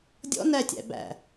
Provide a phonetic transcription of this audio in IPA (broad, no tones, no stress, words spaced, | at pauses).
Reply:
dʲɔ̰ nætʲæ̰ bæ̰